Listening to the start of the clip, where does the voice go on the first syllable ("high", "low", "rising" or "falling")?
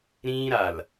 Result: high